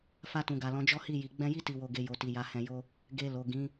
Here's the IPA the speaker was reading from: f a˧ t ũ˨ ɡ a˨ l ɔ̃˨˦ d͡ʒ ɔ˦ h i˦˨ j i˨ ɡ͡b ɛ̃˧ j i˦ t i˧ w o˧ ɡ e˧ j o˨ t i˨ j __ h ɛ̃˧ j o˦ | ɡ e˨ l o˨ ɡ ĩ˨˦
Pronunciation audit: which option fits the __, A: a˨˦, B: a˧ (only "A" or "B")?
A